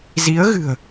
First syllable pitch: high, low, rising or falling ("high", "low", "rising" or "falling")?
rising